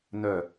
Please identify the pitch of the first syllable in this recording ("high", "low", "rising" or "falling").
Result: falling